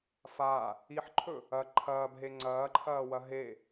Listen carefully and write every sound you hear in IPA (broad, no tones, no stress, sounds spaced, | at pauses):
f a | i ħ ǃʰ ɵ | ɐ ǃʰ ɐː b ɦ e ŋ͡ǀ ɐː ǃʰ ɐː w ɐ ɦ e